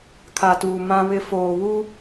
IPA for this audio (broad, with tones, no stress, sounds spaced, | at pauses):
kʰ a˨ t uː˨ m ã˦ β ɪ˦ f oː˨ β u˦